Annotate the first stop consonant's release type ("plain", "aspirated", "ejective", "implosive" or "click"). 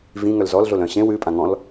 ejective